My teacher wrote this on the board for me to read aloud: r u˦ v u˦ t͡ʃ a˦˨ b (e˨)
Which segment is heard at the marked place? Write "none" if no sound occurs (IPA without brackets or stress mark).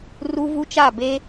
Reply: e˦